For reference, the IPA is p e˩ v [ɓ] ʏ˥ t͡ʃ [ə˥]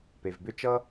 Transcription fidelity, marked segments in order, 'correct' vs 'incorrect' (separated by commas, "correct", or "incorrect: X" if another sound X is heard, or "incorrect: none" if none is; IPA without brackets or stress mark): incorrect: b, incorrect: ʌ˥